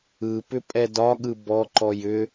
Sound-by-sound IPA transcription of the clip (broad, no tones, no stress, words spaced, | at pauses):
ɯpʏ pʼɛdɒɠɯ bɔǃɔj ʏ